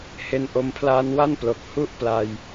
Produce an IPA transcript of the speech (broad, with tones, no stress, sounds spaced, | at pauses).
h e˧ n ʔ o˧ m pʰ l aː˧ n w a˥˩ n p l o˨˩ k̚ h u˦˥ ʔ p l a˧ j